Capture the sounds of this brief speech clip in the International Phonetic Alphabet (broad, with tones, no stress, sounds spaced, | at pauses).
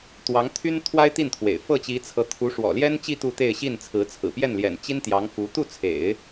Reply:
t̪ w ɑ˧˥ ŋ t̪ʰ y˥ n t̪ʰ w a˥ ɪ̯ t̪ i˥˩ n t̪ʰ w ḛ˨˩ ɪ̯ f ɤ˥˩ t͡ɕ i˧˥ t͡sʰ ɤ˧˥ t̪ʰ u˧˥ ʂ w ɔ̰˨˩ l j ɛ˥ n t͡ɕ i˥˧ t̪ u˥˧ t̪ e˥˧ ɪ̯ ɕ i˥˩ n t͡sʰ ɹ̩˧˥ t͡sʰ ɹ̩˨˩ p j ɛ˥˩ n l j ɛ̰˨˩ n t͡ɕ i˥ n t̪ j ɑ˧˥ ŋ f u˧˥ t̪ u˥˩ t͡sʰ ḛ˨˩˦ ɪ̯